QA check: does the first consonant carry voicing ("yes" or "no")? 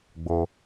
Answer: yes